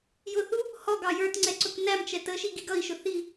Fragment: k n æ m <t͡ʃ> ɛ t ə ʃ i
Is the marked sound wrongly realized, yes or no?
no